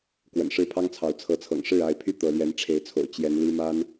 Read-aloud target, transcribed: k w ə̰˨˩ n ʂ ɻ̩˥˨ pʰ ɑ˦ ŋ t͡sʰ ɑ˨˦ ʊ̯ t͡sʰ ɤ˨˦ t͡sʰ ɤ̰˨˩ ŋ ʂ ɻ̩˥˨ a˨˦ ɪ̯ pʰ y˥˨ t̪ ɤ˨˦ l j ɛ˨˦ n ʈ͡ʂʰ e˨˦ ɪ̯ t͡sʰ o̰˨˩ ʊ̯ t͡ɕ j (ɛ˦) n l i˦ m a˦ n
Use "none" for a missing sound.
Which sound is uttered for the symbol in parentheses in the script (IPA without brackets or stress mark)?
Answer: ɛ˨˦